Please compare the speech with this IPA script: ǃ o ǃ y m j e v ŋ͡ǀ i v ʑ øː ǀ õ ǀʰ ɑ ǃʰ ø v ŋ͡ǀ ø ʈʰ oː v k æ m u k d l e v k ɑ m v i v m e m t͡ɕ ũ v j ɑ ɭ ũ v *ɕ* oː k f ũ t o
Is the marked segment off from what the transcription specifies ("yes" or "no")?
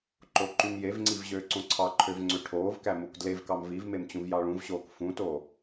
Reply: no